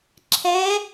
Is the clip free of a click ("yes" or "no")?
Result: no